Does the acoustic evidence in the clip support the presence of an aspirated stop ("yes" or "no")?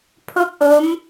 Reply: yes